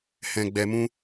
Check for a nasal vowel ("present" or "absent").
present